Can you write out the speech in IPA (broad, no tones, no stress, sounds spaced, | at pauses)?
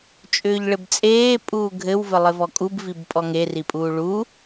t͡ʃʼ ʏː ʎ ɭ ɘ b t͡sʼ eː pʼ uː ɡʱ ɘ w v ɘ lˠ ɘ v ɔ kʼ u b v i b pʼ ɔ ŋ e r i pʼ uː ɭ uː